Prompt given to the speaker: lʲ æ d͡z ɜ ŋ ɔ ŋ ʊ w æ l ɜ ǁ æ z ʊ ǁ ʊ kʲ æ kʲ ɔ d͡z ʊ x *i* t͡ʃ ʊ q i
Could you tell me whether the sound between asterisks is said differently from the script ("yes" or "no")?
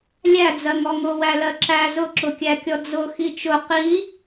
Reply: no